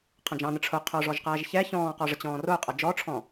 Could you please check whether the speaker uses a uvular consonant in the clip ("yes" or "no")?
yes